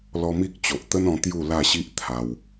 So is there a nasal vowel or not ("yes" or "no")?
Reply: yes